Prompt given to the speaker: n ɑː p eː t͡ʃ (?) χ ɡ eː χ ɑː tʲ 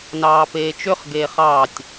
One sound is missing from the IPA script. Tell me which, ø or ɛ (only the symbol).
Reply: ø